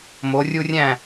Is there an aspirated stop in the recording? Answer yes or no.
no